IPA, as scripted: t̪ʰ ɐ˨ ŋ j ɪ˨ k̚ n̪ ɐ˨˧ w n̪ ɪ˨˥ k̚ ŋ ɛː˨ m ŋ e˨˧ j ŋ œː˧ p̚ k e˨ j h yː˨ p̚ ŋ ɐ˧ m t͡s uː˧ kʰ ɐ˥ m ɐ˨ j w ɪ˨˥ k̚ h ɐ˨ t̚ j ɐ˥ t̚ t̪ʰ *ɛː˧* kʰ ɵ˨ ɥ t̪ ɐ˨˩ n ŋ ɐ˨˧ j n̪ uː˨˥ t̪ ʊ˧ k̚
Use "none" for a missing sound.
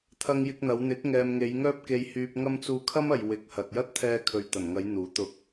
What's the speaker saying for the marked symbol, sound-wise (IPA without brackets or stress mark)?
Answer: ɛː˧